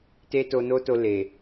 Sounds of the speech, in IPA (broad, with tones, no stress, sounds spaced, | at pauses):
t e˦ t o˧ n o˦ t o˧ l e˨